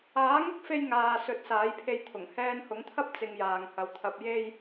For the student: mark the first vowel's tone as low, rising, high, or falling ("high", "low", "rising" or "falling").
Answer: rising